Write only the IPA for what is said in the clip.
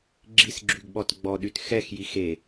ɡ͡ǁisɡ͡ǁyɡɓɔt ɡ͡bɔɗyt xɛxjix e

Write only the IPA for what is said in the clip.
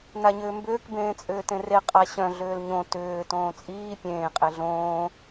naɲʏːmbʏːk bẽːt͡sʼʏːtẽre qʼaɕœ̃ ɮʏːlɲõ tʏː tõːt͡sʼiː pʲẽː qʼeɮõː

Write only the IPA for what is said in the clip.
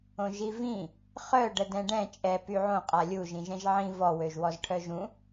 õʒivĩ | χœ ɖədɛ̃ɖɛ̃ t͡ʃʼɛ pyʕõ qʼalʲu ʒĩʒɛ̃ʒʕĩ vɔ wøʒwɔzʈʰœʒũ

